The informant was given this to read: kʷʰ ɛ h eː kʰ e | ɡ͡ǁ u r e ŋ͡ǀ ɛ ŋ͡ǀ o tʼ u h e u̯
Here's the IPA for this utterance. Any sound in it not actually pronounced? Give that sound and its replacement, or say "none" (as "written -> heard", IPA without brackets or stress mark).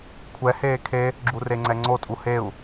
none